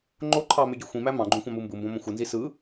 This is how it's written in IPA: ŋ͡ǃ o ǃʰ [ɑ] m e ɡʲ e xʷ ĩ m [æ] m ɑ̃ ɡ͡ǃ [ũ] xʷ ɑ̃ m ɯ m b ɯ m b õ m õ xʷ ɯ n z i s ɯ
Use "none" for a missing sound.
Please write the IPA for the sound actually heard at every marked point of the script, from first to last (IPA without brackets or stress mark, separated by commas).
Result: ɑ, æ, ũ